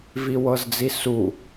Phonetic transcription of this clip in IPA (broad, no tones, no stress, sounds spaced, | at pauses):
v i w ɤ z d͡z i s u